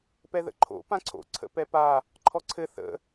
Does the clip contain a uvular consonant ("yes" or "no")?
no